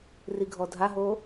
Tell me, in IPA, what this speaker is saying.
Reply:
r i ɡʱ ɔ dʱ a ɦ o

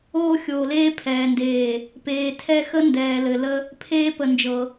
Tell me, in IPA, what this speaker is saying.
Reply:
oː˦ xʲ oː˨ l eː˦ pʰ ɛː˨ n d eː˨ | p eː˨ tʰ ɛ˦ x ə˦ n d ɛː˨ l ɘ˨ l ə˦ | pʰ eː˦ p ə˨ n d͡ʒ ɤ˨

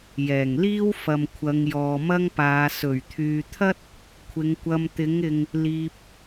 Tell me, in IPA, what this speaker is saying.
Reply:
j ɛː˨˩ ŋ l iː˥ w f ɐ˨ m kʷʰ ɐ˨˧ ŋ j ɔː˨ m ɐ˥ ŋ p aː˨˧ s ɵ˨˩ ɥ t̪ʰ yː˨ t̪ʰ ɐ˥ t̚ | kʷʰ ɪ˨˧ ŋ kʷ ɐ˧ m t̪ ɪ˨˥ ŋ ɪ˨ ŋ | l iː˧ p̚

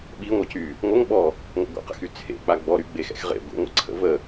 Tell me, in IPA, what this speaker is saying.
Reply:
ɓ i ŋʷ ə c y | ŋʷ ə ŋ ɓ ɔ | ŋʷ ə̰ ɡʷ ə̰ q ə̰ x y t͡sʰ ḛ k͡p a ɡ͡b ɔ ɾ y ɡ͡b e x ɛ̰ x ʁ ḛ ɡʷ ḭ ŋʷ ə̰ ǀʰ ə̰ v ə

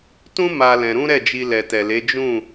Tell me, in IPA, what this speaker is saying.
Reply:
t ũ˦ m a˧ l ɛ̃˧ ɾ ũ˦ ɾ ɛ˦˨ d͡ʒ i˧ l ɛ˨ t ɛ˨ l e˨˦ d͡ʒ ũ˦˨

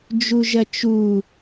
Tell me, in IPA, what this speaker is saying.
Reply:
d͡ʒ u ʒ ɐ t͡ʃ u

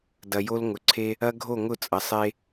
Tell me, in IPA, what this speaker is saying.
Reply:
d ɐ˨ j o˦ l ŋ ʊ˨ ǀʰ e˦ | ɐ˦ ɡʱ o˦˨ ŋ ʊ˦˨ t͡sʼ ɐ˨ sˤ e˦

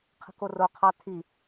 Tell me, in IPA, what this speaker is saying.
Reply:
qʰ ə̤ k o r o qʰ ɑ tʰ i

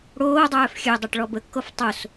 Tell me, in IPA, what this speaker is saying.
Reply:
ɽ oː dˤ œː f xʲ ø dˤ œ ʈ ɭ ɔ b ə kː o f tˤ o s

